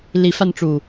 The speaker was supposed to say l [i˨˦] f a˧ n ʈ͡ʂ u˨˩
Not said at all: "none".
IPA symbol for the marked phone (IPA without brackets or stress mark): i˨˦